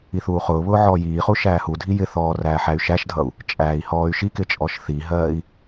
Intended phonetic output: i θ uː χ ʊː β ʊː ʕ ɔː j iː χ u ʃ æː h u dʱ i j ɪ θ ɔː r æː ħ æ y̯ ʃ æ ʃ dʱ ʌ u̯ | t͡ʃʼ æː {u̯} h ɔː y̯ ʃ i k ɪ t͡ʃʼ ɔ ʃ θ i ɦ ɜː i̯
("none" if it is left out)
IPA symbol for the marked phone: i̯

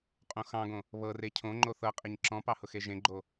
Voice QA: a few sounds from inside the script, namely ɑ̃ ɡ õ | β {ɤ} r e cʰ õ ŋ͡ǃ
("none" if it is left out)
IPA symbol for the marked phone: ɤ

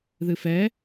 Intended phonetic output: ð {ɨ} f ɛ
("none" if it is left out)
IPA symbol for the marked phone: ɨ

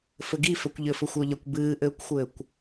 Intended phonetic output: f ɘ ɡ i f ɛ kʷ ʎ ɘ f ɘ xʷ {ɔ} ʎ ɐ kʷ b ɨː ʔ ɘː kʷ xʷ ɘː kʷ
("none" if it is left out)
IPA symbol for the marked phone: ɔ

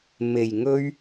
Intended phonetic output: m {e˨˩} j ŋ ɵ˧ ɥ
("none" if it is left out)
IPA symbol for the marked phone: e˨˩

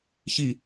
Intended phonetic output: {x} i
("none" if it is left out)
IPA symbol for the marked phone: ç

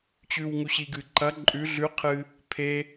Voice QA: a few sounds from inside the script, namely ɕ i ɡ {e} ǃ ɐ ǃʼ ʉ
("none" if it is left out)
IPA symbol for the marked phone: ɨ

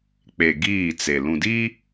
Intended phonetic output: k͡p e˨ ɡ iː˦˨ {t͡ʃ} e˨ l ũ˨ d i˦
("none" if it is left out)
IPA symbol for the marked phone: t͡s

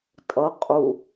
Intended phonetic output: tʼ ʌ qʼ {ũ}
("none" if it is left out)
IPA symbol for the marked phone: u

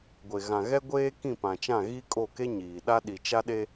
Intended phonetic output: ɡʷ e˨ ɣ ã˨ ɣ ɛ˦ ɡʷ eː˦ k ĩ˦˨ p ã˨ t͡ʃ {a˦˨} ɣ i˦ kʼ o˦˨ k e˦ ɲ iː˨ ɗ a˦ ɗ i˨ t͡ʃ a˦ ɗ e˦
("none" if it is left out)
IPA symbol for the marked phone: ã˦˨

